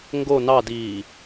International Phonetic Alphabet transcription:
ŋ ɡ o n ɑ d iː

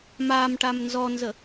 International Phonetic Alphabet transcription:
m a m ʈ a m n z ɔ n z ə

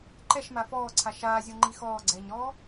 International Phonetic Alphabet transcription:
ǃ ɛ ʃ m a f ɔː ǀʰ a ʃ aː zʲ o ŋ͡ǃ i x ɔː ɡ͡ǀ ɛː ɲ ɾ ɔː

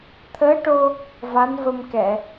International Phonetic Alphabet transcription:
t̪ʰ əː˧˥ ʈ o˧ | v a˧˥ n v ə˧ m k ɛ˨˩˨

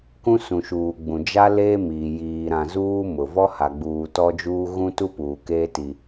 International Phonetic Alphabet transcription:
k ũ˦ s ũ˨ ʃ uː˨ ɡ͡b ũ˨ d͡ʒ a˦ l eː˦ m iː˨ j iː˨ ɾ ã˨ z uː˦ m ʊ˨ v ɔ˦ h a˨ ɡ͡b uː˨ t ɔ˦ d͡ʒ uː˦ ɣ ũ˦ t u˦ p uː˨ k eː˦ t i˦

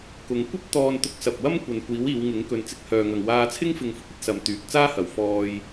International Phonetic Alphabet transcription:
k ʊ˨˧ ŋ kʷ ɐ˥ p̚ t̪ ɔː˧ n t̪ ʊ˧ k̚ s ɐ˨ p̚ w ɐ˥ m kʷ ɐ˨ n kʷ iː˨˥ w iː˨˧ w ŋ ɪ˨˥ ŋ k ɵ˨˧ n t͡s ɪ˧ k̚ h œː˨ ŋ ɐ˨ ŋ w aː˧ t͡sʰ ɪ˥ ŋ f ɪ˨˧ ŋ f ʊ˥ k̚ ɐ˧ t̚ s ɐ˨˧ m t̪ yː˨ k̚ t͡s aː˥ h ɐ˨ w f ɔː˧ j

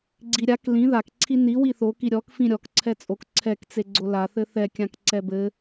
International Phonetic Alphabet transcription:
ɡ͡ǀ i ɾʲ a k l ĩ ð a k ǀʰ i n i w i θ o k i ɾʲ ɔ k f ĩ ɾʲ ɔ k ǀʰ ɛ t͡sʼ o k ǀʰ ɛ k t͡s e ɡ͡ǀ o l a θ ɘ θ ɛ kʲ ã k ǀ ɛ b ɘ

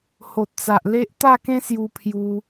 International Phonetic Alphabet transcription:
h o˨ t̚ t͡s a˨ ʔ l e˦ ʔ t̪ a˥˧ k ẽ˦ s j u˧ pʰ j u˧

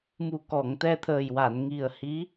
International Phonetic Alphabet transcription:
m u˨˩ k ɔ˨˩˨ ŋ t̪ ɛ˧ t̪ʰ əː˨˩ j w a˨˩˨ n ŋ i˨˩ ə̯ h i˧˥

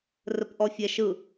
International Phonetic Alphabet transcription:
r ə p ʔ ɔ fʲ ɛ ʃ ɯ

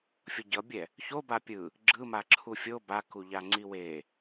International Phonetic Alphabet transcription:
fʲ ʌ ɟ ʌ bʲ ɛ | ç o b a pʲ ɯ | ɡ͡ǁ ɯ m a ǁʰ u fʲ o b a k u ʎ a ŋ͡ǀ i w e

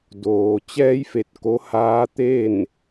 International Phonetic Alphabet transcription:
d oː˩ t͡ɕ ɛː˧ j f e˧˩ t̚ k o˧˥ h aː˧˥ t̪ e˥˨ n

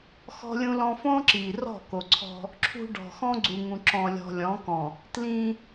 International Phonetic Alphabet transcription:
x ɔ̤˦ lʲ ũ˦ l ɔ̃˦ f õ˦ ǁ i˨ r ɔ̤˦˨ k o˨ ǀʰ ɔ̤˦ | ǁʰ ṳ˦ ɖ ɔ̤˨ x ɔ̃˦ ɡ͡ǀ u˨ ŋ ũ˨ ǁ ɔ̃˨ lʲ ɔ̤˨ lʲ ɔ̃˨˦ k ɔ̃˨ | t l ĩ˦

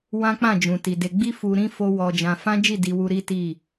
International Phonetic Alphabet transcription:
w ã˦ k͡p ã˦˨ d͡ʒ ũ˨ t i˨ d e˧ ɡ͡b i˦ f u˧ ɾ ĩ˦ f o˦ w ɔ˧ d͡ʒ ã˧ f ã˦ d͡ʒ i˦˨ d i˧ w u˧ ɾ i˦ t i˦˨

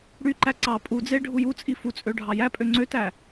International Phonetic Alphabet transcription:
ɽ y ǃ æ ǀ ɑ pʼ u d͡z e ɖʱ u j u t͡sʼ i f u t͡sʼ ø ɖʱ ɑ j æ pʼ ø ŋ͡ǀ ø t æ

